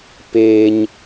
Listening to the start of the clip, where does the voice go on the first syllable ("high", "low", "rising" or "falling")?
high